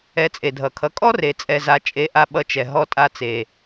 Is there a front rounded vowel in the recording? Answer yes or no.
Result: no